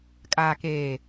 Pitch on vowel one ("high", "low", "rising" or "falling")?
low